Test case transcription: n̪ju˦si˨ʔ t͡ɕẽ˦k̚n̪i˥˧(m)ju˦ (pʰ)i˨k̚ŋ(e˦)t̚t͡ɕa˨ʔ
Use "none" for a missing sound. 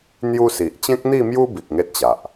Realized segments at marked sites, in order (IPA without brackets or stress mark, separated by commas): m, b, e˦